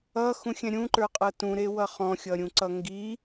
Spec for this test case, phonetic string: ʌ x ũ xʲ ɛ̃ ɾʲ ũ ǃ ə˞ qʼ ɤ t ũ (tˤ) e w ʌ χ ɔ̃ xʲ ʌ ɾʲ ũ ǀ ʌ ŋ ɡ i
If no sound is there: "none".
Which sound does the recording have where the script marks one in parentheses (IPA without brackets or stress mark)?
ɾ